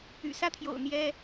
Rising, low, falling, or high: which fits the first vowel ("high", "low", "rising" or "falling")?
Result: low